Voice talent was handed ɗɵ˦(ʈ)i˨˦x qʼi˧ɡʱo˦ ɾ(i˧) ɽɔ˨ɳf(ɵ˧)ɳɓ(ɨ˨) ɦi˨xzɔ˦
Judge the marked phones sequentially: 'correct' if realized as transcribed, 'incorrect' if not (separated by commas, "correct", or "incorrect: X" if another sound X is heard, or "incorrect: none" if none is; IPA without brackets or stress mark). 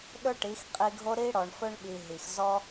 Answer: correct, correct, correct, incorrect: i˨